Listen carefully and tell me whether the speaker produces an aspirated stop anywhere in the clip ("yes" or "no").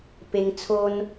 yes